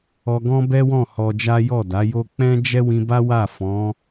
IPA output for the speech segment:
ɔ˧ ɡ ɔ̃˦ b ɛ˦ w ɔ̃˦˨ h ɔ˧ d͡ʒ a˦ j ɔ˦˨ d a˨˦ j o˦ k͡p ɛ̃˦ d͡ʒ ɛ˦ w ĩ˧ b a˦ w a˦˨ f ɔ̃˨˦

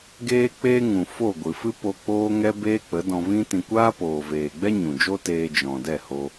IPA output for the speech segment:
ɡ eː˧ k͡p eː˧ ŋ ũ˨ f o˦˨ ɡʷ ɨ˨ f ɨ˦ p o˧ k͡p oː˦ ŋ ɛ˦ b eː˦ k͡p ə˨˦ d ɔ̃˧ v ĩ˦ t ĩ˧ kʷ aː˦ p oː˨ v eː˨ ɡ͡b ɛ˦ ɲ ũ˨ d͡ʒ o˦ t eː˧ d͡ʒ ɔ̃˨ d ɛ˦˨ h o˧

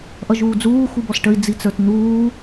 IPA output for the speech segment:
ʔ ʌ ʒ uː d͡z uː x u b ɔ s ʈ ə i̯ d͡z i t͡s ə˞ t n̪ uː

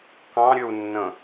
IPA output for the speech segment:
k ɑ̃ ɾʲ ø u̯ nː ə̃

